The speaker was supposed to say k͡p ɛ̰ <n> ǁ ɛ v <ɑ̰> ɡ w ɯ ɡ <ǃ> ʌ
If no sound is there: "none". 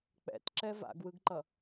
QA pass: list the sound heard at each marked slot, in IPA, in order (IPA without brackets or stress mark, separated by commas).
t, a̰, ǃ